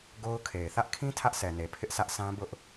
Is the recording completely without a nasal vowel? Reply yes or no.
no